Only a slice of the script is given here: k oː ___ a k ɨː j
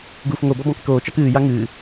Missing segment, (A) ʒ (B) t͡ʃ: B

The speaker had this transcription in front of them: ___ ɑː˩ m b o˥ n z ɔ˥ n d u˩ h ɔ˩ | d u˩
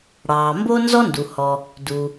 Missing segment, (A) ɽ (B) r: A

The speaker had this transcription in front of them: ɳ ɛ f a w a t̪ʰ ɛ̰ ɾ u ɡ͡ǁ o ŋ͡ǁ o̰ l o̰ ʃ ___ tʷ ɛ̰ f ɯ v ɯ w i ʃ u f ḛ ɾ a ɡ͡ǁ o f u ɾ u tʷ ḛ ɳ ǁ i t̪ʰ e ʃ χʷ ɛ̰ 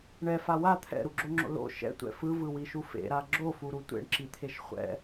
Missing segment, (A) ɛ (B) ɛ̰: B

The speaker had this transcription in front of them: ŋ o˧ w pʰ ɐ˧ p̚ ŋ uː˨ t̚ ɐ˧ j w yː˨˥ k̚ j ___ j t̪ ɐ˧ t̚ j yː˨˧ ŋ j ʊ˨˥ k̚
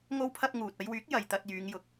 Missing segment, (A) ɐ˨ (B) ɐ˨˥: A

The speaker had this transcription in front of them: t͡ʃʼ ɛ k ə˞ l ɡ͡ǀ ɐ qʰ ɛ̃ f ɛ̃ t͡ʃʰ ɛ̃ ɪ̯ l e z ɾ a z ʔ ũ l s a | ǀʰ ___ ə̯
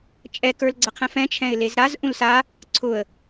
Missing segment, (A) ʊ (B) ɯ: A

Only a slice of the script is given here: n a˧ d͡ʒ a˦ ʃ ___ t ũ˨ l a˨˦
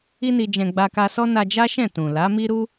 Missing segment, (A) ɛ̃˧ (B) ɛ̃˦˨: B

